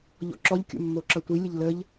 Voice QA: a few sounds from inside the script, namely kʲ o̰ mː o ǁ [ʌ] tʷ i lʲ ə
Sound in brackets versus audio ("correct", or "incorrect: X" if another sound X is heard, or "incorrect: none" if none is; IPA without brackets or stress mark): correct